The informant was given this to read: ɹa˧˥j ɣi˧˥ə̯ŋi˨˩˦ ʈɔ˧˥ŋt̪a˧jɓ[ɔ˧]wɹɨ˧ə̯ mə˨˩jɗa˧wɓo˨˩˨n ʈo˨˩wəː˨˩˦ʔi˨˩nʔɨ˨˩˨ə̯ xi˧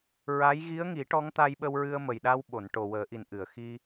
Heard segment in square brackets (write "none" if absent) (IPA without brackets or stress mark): ə˧